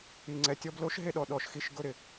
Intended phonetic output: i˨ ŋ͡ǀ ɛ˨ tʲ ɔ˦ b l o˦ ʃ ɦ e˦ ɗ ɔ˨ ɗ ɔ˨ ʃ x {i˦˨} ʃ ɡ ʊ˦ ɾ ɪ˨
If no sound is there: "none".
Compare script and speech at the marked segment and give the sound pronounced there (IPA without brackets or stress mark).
i˨